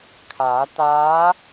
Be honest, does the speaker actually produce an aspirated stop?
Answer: yes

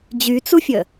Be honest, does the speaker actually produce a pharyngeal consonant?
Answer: no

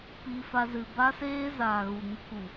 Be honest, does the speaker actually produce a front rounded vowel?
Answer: no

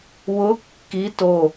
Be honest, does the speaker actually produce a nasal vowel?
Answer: no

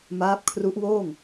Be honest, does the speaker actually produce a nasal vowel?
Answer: no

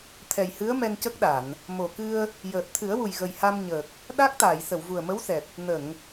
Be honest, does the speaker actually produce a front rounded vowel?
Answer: no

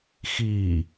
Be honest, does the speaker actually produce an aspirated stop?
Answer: no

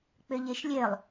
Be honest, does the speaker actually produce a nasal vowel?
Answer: no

